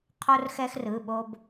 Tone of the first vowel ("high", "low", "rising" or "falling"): high